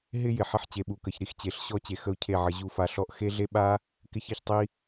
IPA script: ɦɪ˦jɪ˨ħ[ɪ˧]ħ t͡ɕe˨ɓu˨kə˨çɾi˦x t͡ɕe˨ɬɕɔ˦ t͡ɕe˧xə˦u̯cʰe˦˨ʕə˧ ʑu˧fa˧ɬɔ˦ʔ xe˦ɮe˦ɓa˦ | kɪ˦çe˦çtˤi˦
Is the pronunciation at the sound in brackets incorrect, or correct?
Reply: correct